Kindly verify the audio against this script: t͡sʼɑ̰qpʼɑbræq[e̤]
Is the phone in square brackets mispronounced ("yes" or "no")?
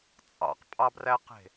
no